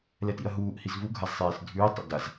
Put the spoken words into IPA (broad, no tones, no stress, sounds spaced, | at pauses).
l ɛ t ḭ ɐ̯ ɦ uː ʔ h i z v u ɡʱ a z sˤ eː s dʱ ʉː tˤ ḛ d a z